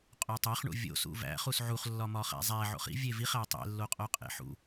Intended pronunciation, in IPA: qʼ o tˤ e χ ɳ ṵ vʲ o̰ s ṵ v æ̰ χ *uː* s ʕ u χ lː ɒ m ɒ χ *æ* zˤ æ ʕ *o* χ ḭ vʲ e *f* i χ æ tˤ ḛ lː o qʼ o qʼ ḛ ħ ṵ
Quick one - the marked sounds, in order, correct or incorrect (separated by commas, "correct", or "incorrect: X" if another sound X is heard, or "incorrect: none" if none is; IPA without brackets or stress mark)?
incorrect: u, incorrect: æ̰, incorrect: o̰, incorrect: v